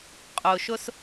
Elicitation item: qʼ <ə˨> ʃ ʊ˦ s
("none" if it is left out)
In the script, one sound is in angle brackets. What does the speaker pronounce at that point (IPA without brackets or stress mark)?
ʊ˨